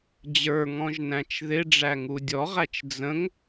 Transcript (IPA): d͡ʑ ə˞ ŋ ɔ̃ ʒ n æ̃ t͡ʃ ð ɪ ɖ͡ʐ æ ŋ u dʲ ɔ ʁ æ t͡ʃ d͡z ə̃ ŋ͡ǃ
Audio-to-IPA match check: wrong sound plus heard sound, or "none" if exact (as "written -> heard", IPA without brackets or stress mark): ŋ͡ǃ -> ŋ